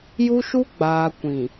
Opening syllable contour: high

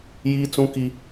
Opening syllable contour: high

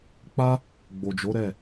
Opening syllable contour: high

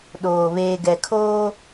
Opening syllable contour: low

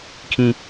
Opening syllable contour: high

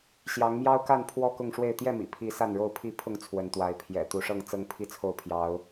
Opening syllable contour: rising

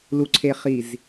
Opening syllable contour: low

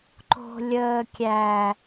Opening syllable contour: low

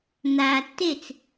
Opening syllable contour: low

